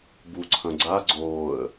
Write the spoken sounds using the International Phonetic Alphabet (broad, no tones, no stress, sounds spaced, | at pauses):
b u ǀʰ ɐ̃ ɡ͡ǀ a ɡ͡ǀ oː ə̯